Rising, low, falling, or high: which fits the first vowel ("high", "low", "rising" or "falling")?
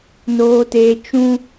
high